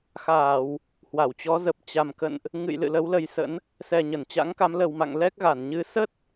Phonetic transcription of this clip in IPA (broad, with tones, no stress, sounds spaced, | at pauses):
x aː˧˩˨ w | h w a˧˩ w t͡ɕ ɔ˨˦ z ə˨˩ p̚ t͡ɕ a˨˩ m k ə̰˧˨ n ʔ | ŋ ɨ̰˧˨ j l ɨ̰˧˨ l ə˨˦ w l ə˨˦ j s ə̰˧˥ n | s ɛ˨˩ ɲ ə˧˩ n t͡ɕ a̰˧˥ ŋ k a˨˦ m l ə˨˩ w m a̰˧˨ ŋ l ɛ˦˥ k̚ ɣ a˧˩ n ɲ ɨ˧ s ə˦˥ t̚